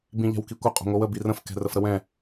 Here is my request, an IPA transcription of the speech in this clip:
b ĩ ʎ ɛ̤ w k i kʷ ə qʼ o̤ ŋʷ ə w ə b i r ə̃ f k ɛ̤ r ə f ɾ ə w ɛ̃

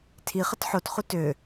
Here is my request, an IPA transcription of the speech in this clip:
tʰ i χ ə t ħ o t χ u t ø

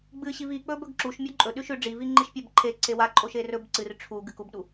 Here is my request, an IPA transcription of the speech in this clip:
ɡ͡b ɨ ɕ i v i k͡p ɵ b ɵ ɡ ǁ u ʃ mʲ o ǃʼ ɵ ɗ ʉ ʃ ʉ ɖ͡ʐ i v i ŋ͡ǃ i ʃ pʲ a b ǃʰ e ǀ e w a ǃʼ o ʃ e r ɵ b ǀ ɨ r ʈ͡ʂʰ u ɡ ɨ k u b ɗ u

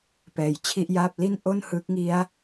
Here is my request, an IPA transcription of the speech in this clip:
p ɛː˩˦ j t͡ɕʰ i˥˩ ʔ j aː˥˩ p̚ l i˥˩ n ʔ o˥˩ n h ɯ˦˥ k̚ ŋ i˦˥ a̯

